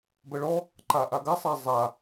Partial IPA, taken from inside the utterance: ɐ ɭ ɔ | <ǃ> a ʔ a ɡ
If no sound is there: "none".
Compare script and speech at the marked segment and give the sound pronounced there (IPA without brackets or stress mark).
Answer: ǃ